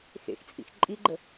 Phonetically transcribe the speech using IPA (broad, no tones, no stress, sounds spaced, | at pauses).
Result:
x ḛ x t͡sʼ ḭ x ǃʼ i ɡ͡ǃ ə